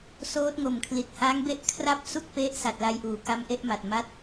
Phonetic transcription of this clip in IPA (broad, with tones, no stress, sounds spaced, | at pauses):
s oː˦˥ t̚ ŋ o˨˩ m kʰ l i˨˩ t̚ h a˦˥ ŋ b e˦˥ ʔ kʰ r a˥˩ p̚ s u˥˩ k̚ p e˦˥ ʔ s a˨˩ t̚ l a˧ j ʔ uː˩˦ k a˦˥ m ʔ e˦˥ ʔ m a˨˩ t̚ m a˥˩ t̚